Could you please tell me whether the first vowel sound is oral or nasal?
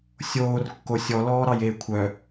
oral